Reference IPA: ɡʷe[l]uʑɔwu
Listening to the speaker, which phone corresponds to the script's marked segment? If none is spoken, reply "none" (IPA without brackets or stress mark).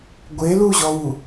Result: l